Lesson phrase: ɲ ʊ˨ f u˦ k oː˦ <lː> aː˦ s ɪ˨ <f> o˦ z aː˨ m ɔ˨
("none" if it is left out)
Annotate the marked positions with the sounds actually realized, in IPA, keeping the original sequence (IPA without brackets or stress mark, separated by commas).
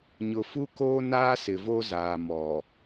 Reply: n, v